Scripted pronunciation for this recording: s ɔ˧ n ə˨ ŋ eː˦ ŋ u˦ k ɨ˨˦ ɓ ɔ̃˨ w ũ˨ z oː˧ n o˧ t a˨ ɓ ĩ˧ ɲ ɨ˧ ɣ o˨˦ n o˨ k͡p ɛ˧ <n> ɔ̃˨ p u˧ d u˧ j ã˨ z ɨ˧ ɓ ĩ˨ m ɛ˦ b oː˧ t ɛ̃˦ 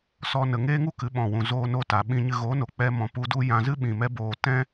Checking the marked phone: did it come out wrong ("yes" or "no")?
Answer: yes